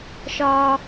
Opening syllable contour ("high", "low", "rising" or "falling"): high